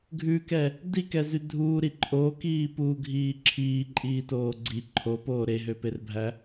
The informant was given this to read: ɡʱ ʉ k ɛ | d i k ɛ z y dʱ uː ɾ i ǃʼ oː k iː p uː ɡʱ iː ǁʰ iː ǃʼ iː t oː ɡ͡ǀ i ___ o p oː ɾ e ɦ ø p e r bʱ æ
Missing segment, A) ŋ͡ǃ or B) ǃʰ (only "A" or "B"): B